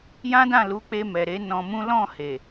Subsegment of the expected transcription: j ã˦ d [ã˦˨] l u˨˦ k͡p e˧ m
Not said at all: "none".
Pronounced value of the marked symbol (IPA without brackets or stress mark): ã˦˨